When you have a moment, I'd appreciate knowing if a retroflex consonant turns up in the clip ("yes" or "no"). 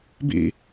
no